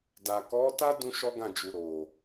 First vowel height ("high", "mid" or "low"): low